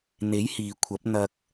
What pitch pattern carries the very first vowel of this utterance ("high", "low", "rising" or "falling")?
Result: rising